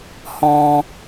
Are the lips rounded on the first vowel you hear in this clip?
yes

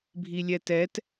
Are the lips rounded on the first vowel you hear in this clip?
no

